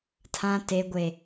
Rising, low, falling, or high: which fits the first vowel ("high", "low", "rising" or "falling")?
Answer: low